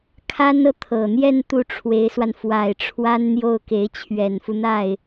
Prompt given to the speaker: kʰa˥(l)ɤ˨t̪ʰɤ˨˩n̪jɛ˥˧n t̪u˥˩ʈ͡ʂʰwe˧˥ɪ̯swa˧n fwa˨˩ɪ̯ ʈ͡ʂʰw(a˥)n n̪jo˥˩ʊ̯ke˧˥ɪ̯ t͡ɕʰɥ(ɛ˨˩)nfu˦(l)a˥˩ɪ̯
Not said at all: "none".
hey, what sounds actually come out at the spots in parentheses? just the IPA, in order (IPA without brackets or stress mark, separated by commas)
n, a˥, ɛ˨˩, n̪